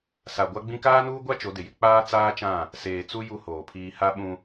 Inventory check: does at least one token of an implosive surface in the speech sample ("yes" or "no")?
yes